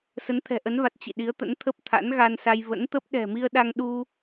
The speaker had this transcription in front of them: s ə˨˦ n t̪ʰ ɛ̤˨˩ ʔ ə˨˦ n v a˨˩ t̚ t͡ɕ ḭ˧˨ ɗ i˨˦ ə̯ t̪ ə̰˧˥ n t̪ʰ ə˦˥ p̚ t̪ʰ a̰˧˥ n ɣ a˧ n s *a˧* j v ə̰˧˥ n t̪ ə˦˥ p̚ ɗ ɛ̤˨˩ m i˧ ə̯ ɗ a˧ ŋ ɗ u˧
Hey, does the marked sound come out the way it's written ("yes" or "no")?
yes